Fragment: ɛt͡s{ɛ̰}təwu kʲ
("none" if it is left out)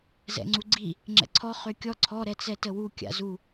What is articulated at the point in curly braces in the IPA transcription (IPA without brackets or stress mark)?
ɛ